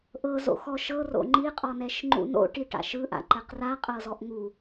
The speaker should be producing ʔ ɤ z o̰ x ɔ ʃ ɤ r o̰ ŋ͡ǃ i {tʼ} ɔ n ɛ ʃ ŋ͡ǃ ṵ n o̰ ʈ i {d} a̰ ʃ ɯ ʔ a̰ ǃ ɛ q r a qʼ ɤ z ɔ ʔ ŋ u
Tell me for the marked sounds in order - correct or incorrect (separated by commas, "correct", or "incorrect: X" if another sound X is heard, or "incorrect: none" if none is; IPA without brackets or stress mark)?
incorrect: qʼ, incorrect: ʈ